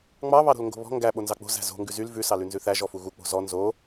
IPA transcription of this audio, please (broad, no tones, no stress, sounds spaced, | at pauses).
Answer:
ŋ͡m ɑ β ɑ ɾ o̤ l ŋ ɡ o̤ β ɔ̤ ŋ ɡ æ ɓ o n z ɑ k͡p o̤ z æ̤ z o̤ ŋ ɡ ʉ z y l v ʉ s ɑ l ʉ n z ʉ θ æ ʒ ɔ f u ɣ u k͡p o̤ z ɔ n z o